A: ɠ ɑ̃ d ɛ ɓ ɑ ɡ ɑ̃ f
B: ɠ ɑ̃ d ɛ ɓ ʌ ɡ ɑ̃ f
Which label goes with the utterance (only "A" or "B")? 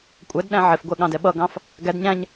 B